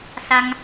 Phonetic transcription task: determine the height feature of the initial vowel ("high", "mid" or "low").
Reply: low